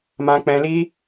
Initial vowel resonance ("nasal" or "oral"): nasal